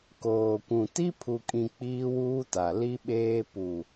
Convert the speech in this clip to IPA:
koː˨kʷũ˨ ti˦ pʰu˨kʼĩ˨ k͡piː˦wuː˦ta˨ li˦ɓeː˦ pu˨

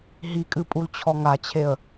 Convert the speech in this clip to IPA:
ɦikʼɨpʼult͡ɕʰɔ ŋat͡ɕʰeə̯

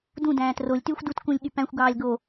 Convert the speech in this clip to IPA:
dũdæ̃ːt rolʲtyːxʷ dutkũlʲ ɠypæ̃xʷɡɑːlʲ ɡo

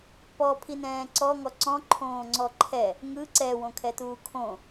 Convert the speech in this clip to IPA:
pɔpʰinɛ̃ː ǀɔŋɔ ǀɔ̃ǃʰõːŋ͡ǀɔ ǃʰɛ | ŋɯ ǀɛwõkʰɛtuː kʰõ

